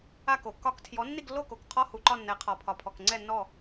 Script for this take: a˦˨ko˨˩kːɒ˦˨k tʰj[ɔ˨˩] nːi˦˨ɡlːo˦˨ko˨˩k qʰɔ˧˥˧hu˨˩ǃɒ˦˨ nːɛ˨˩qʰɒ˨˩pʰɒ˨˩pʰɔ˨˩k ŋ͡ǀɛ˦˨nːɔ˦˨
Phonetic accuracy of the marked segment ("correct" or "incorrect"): incorrect